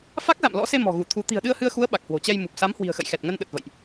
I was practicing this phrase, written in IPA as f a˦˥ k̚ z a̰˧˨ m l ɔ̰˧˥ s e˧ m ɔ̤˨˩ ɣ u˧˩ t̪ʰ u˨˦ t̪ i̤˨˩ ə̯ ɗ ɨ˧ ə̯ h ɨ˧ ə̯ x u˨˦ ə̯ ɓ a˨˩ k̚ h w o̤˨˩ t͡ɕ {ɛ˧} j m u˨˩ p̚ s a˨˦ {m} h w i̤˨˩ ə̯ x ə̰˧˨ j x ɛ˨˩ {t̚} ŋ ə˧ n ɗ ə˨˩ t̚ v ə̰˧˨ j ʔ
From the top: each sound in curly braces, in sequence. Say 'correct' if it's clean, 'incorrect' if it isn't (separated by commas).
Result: correct, correct, correct